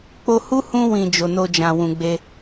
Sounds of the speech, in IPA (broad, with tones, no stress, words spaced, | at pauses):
k͡po˧hu˦ hũ˧wĩ˨ d͡ʒo˨no˧d͡ʒã˨ wũ˨ɡ͡be˧